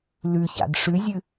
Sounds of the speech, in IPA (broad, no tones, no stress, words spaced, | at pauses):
lʉça̰d ʂʉzʲɨ